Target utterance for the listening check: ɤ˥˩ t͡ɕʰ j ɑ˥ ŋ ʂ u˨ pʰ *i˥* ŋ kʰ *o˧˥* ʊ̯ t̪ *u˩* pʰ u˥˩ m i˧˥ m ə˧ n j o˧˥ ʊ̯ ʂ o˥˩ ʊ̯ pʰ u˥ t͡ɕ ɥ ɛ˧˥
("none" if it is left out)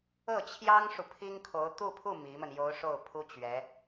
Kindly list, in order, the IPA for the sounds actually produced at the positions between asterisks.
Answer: i˥, o˧˥, u˥˧

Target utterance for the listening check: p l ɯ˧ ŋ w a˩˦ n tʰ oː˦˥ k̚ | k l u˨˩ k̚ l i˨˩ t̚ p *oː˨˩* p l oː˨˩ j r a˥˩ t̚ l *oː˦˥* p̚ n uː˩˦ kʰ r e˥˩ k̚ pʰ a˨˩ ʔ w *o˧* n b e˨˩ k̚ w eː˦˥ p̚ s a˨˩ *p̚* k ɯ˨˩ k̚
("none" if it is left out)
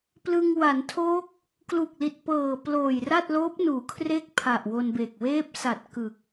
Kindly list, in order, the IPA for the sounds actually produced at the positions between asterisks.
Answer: ɤː˨˩, oː˦˥, o˧, t̚

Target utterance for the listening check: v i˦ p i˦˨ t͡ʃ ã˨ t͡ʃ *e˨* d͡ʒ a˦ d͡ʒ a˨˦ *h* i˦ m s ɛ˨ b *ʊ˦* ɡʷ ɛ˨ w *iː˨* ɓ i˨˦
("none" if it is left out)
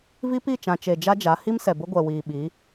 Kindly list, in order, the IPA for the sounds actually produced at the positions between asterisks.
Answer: e˨, h, ʊ˦, iː˨

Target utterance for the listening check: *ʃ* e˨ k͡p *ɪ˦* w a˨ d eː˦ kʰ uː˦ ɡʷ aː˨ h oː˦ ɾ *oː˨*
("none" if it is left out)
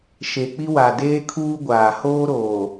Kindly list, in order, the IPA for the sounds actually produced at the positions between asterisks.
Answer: ʃ, i˦, oː˨

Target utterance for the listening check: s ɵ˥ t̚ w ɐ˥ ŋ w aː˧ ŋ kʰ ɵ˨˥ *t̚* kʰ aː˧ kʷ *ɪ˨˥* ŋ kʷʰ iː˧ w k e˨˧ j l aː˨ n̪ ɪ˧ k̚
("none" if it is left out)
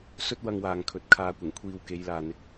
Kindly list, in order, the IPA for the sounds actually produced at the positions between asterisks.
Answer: t̚, ɪ˨˩

